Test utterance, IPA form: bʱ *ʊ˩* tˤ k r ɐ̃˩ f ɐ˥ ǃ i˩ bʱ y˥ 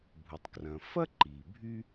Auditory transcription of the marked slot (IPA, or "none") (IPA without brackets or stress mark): u˩